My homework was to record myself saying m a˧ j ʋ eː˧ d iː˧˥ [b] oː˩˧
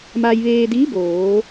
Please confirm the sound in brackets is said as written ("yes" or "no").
yes